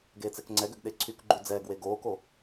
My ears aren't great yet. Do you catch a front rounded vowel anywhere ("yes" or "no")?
yes